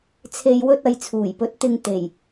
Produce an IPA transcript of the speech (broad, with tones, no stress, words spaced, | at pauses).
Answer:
t͡sʰe˨jwɵ˧t̚ɐ˨j t͡sʰuː˨˩jpɵ˨˥t̚ t̪ɪ˧ŋ t̪e˨˩j